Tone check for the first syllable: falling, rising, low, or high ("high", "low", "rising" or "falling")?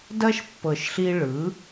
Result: high